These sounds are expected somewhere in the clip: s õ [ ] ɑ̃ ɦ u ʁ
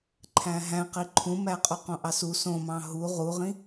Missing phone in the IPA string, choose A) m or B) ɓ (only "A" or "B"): A